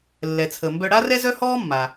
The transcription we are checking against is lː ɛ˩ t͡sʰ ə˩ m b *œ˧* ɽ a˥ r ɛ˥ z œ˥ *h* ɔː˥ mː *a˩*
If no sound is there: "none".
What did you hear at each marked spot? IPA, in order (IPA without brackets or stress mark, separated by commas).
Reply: œ˧, h, a˩